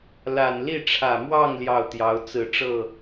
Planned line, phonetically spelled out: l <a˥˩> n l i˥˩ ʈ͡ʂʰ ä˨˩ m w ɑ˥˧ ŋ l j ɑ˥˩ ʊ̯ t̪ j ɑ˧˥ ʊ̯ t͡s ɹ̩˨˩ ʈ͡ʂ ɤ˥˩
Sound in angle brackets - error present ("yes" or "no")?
yes